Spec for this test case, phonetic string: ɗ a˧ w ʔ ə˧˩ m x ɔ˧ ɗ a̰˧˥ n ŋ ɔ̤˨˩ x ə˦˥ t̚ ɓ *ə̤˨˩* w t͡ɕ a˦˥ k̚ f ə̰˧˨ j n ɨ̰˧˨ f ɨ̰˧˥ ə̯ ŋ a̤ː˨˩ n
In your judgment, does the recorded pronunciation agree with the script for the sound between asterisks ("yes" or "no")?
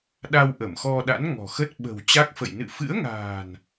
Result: yes